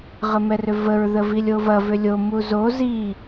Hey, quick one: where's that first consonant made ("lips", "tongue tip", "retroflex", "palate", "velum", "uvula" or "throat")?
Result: uvula